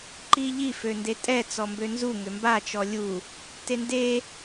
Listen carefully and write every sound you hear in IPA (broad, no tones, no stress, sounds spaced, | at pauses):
ǃ i ʎ i f ø n d e tʼ ɛ t͡s ɔ m b ø n z u ŋ ø m b a t͡ʃ ɔ lʲ u | t e n d e